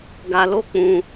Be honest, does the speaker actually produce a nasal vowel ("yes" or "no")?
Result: yes